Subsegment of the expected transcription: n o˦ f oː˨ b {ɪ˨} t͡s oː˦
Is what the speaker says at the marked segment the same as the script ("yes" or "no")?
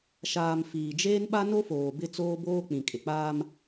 no